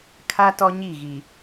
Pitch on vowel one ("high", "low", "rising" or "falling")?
high